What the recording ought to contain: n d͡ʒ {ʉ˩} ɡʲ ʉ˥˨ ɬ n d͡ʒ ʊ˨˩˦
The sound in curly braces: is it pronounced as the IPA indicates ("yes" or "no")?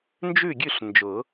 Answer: no